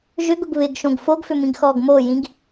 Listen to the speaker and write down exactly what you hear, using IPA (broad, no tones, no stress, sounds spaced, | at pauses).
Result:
ʒ ʏ ɡ ʊ ɡ β ɪ ɡ ʃ õ ɡ f o ɡ f ʏ m ĩ ɡ x ɔː ɡ m o j ĩ ɡ